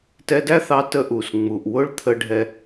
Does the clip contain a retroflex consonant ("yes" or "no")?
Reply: yes